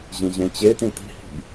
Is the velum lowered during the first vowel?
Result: yes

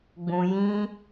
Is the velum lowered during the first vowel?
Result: yes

